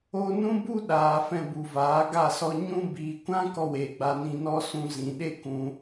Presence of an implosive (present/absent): present